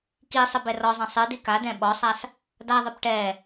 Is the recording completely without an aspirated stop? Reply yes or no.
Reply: yes